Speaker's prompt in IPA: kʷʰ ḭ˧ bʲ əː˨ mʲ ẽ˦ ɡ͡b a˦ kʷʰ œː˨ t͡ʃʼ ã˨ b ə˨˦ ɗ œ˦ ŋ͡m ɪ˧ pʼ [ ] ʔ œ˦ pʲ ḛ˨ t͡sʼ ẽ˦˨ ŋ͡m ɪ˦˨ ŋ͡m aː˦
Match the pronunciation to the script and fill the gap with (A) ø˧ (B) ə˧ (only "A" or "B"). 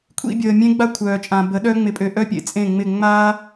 A